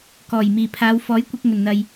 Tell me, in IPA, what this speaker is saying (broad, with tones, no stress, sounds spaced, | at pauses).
k ɔː˨˩ j m iː˨˩ pʰ aː˨˧ w f ɔː˨˥ j kʷ ɪ˧ k̚ ŋ ɵ˨˩ n n̪ ɐ˨ j